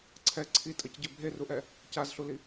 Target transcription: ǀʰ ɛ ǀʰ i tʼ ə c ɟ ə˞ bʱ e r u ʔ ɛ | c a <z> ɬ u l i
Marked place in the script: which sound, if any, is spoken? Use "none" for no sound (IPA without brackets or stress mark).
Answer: z